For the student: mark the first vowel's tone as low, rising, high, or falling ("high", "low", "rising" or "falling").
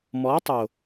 rising